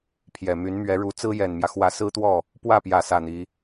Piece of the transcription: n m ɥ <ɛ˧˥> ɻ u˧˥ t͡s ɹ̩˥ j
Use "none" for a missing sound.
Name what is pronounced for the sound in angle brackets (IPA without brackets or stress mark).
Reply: ɛ˧˥